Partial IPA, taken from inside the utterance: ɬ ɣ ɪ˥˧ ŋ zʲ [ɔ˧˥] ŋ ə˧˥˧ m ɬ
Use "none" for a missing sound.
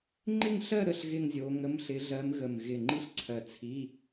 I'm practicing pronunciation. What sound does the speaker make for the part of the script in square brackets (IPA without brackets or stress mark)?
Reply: o˧˥